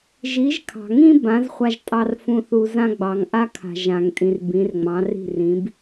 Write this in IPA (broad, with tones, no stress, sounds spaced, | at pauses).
ʒ i˩˥ ʒ kʰ ɑ̤˩ ŋ ĩ˥ b ã˩˥ z χʷ a˧ ʒ tʼ ɑ˧ r f ũ˧ θ u˧ z ã˥ ɡ͡b ɑ˩ ŋ ʔ a˥ kʰ a̤˩ ʒ ã˩ ŋ tʼ ĩ˩ r b ĩ˩˥ r ŋ͡m ɑ̃˩˥ r i̤˥˩ r ĩ˩˥ b